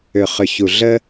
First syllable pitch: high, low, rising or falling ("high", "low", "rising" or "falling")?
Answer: low